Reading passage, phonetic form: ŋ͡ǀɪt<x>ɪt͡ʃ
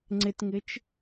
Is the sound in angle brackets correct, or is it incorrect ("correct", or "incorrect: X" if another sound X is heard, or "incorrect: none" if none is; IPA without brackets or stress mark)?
incorrect: ŋ